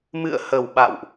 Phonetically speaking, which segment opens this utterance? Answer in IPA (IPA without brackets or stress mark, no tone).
m